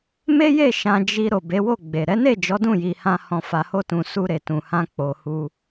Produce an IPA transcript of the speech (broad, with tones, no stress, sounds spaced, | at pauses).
m e˦ j e˦˨ ʃ ã˧ d͡ʒ i˧ ɾ o˨ b e˨˦ w o˦˨ ɡ͡b e˨ ɾ ɛ˨˦ n e˦˨ d͡ʒ ɔ˨˦ d ũ˦˨ j i˨ h ã˧ h ɔ̃˨ f a˨ h o˧ t ũ˨ s u˧ ɾ e˨ t ũ˨ h ã˧ k͡p o˨ h u˧